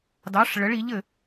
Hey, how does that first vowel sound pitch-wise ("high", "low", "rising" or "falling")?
rising